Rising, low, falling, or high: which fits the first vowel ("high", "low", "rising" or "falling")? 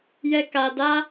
high